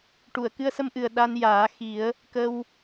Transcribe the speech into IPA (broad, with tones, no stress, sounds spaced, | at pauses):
ʈ u˨˩˨ ə̯ k ɨ˧ ə̯ s ə˧ m ʔ ɨ˨˩ ə̯ ɗ a˧ n j aː˨˩˦ x i˨˩˦ ə̯ | k ə˧ w